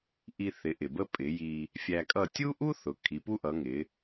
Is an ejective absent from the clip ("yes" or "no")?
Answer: no